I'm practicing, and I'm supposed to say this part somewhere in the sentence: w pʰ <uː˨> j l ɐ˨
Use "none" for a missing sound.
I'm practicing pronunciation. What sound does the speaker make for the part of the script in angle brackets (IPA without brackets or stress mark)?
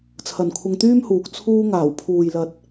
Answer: uː˨